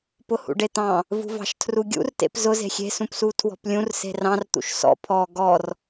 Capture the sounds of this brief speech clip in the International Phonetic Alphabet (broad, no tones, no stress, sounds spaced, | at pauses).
p ʊ h ṵ ɖ e t̪ ɑ̃ | v ṳ v ɑ̤ ʃ tʰ r u ɡʲ ṵ r t ḛ p z ʊ z e̤ xʲ e̤ s ũ p s u tʰ w ɔ̤ p lʲ ũ r s e̤ r ɑ̃ r t̪ ṵ ʃ s ɔ̰ pʰ ɔ ɡ ɔ r